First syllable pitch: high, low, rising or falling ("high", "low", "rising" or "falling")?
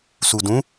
low